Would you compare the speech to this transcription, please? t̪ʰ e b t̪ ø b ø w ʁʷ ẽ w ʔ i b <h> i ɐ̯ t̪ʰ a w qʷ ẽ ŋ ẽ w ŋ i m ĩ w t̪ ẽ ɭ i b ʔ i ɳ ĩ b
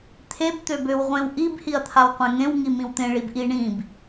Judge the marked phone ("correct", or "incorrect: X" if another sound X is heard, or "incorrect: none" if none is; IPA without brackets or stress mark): correct